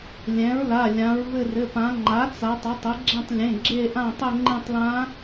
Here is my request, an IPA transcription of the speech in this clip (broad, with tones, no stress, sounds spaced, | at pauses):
lʲ ɛ̃˩˥ ɹ l a˩˧˩ lʲ ã˩˧ ɹ v ɘ˦˨ r ɘ˩˧˩ p ã˩˧ ŋ͡ǃ a˩˥ t͡s a˩˧ tˤ a˩˥ tˤ ɘ˩˥ ɡ͡ǁ ɛ̃˦˨ tˤ lʲ ẽ˩˧˩ ɡ͡ǁ e˦˨ ʔ ã˦˨ tˤ ɘ˦˨ ŋ͡ǃ ẽ˦˨ tˤ l ã˧˥